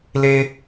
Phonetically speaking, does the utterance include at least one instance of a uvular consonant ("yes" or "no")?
no